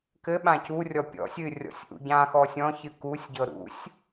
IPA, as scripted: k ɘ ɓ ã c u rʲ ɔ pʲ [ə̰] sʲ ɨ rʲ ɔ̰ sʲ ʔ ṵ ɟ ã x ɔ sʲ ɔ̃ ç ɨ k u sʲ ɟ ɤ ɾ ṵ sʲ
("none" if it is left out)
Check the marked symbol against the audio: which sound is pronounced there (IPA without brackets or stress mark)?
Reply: ɔ̰